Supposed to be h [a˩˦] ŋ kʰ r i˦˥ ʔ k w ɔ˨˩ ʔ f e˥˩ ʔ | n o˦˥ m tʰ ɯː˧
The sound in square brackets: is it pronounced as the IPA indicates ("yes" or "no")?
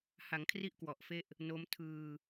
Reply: yes